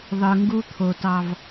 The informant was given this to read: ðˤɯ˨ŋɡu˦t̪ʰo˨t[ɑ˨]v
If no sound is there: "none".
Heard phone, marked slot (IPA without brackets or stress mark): ɑ˨